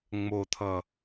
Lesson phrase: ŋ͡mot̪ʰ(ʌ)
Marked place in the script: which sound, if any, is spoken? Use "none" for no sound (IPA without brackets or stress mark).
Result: ʌ